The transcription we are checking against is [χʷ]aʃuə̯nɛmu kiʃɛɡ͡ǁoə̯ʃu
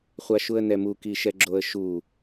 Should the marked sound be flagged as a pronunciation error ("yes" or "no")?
no